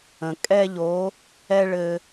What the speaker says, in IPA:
ə̃˩ kʼ ɛ˥˧ ʎ o˨˥ | ɛ˥˧ ɭ ɘ˧

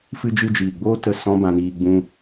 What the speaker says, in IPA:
f ɨ˧ d͡ʒ ɨ˧ d͡ʒ iː˨ ɡ͡b oː˦ t ə˦˨ s ɔ̃˦ b ã˧ n iː˧ ɡ͡b ũ˧

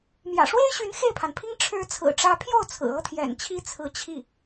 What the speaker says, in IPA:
m j ä̰˨˩ ʂ w e˥ ɪ̯ ɕ y˧˥ n x e˥˩ ɪ̯ pʰ a˩ n pʰ i˥ ŋ ʈ͡ʂʰ ɻ̩˧˥ t͡sʰ ɹ̩˨˩ ʈ͡ʂ ä˧˥ pʰ j o˥˩ ʊ̯ t͡sʰ ɹ̩˨˩ ɤ˥ t̪ʰ j ɛ̰˨˩ n t͡ɕʰ i˥ t͡sʰ ɹ̩˧˥ t͡ɕʰ i˥˩

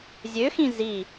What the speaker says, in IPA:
zʲ ø x ĩ z i

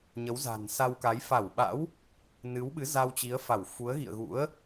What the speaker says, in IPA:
ɲ ə˨˦ w z a̤˨˩ n s a˧ w k a˨˦ j f a˧˩ w ɓ a̰˧˥ w | n ɨ˨˦ w ɓ ɨ˨˦ z a˧ w t͡ɕ i˨˦ ə̯ f a˧˩ w f u˨˦ ə̯ ɣ ḭ˧˨ ə̯ ɣ ṵ˧˥ ə̯

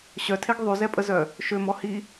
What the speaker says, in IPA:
ɕ œ tʰ e ɡ ðˤ y z ɛ pʼ ə z œ | ʃ ø m ɔ h i

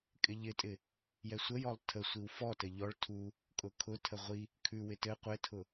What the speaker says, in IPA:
kʼ ɪ ʎ ɪ tʼ ɪ | j ɛ sʷ ə j ɔ lˠ tʰ ə sʷ i w f ɔ t ɘ ʎ ɔ ɭ tʰ u | kʼ ʊ kʰ ʊ tʰ ə ʁʷ i | kʰ ʉ w ɪ t ɘ qʷ ɘ tʰ ʊ

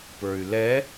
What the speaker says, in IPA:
p ə˞ y̯ l ɛ

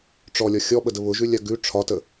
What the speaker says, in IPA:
ʈ͡ʂ ɔ lʲ ɒ xʲ ɔ ɓ ə d ə β ʊ ʒ ʉ lʲ a ɡ ʉ ʈ͡ʂʰ ɒ t ə

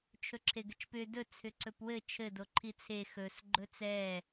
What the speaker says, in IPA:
t͡ʃʰ ɵ ǁʰ e ɡ ɘ t͡ʃ p ʏ d ɵ t͡sʰ ʏ ǀ ɵ p w ɘ t͡ʃʰ ɘ d o ǃʰ i t͡sʰ e x ɵ s ɡ͡ǃ ɵ t͡s ɛ

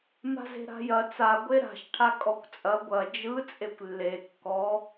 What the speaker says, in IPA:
m a̤ z e̤ ɾ a̤ j ɐ t͡s a ɡʷ e ɾ a̤ ʃ ʈʰ a kʼ ɔ kʷ t͡sʼ ɐ ɡʷ ɐ d͡ʒ ɯ t͡sʼ e kʷ lː e kː ɔ

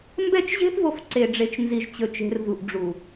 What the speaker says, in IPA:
m b ɛ˦ t͡ʃ ʑ e̤˦ θ v o˨˦ f ǀ e˨ ɖ͡ʐ e˨ t͡ʃ n z i˨ ʒ t͡ɕ ɵ˨ t͡ʃ e̤˨ r v u˨ ʔ ɖ͡ʐ u˨

